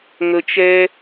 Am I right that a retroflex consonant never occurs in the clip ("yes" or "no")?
yes